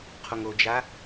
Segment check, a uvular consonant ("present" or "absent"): present